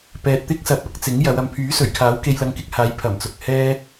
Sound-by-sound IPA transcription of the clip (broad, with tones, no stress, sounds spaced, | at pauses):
p ɛː˨ t̚ t̪ ɪ˥ k̚ s ɐ˨ p̚ ɐ˨˥ k̚ t͡s ɪ˨˥ ŋ j ɐ˨˧ w ɐ˨ m pʰ yː˨˥ s ɵ˨˩ ɥ kʰ aː˨˥ w k e˧ j l ɐ˧ ŋ k ɪ˧ k̚ h aː˨˧ j pʰ ɐ˨˩ m t͡s ʊ˨ k̚ h ɛː˥